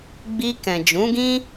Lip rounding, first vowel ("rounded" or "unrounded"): unrounded